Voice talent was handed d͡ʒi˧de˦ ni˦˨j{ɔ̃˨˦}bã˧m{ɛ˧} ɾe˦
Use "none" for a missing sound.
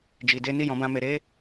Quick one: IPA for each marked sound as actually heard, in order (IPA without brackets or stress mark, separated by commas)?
ɔ̃˨˦, e˧